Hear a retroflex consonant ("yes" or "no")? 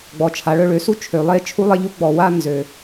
yes